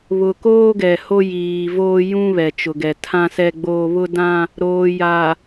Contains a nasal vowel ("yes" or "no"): yes